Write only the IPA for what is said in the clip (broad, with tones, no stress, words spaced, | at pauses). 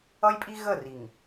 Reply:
ʌ˦jpʼi˦ ɣə˦˨ri˨ŋ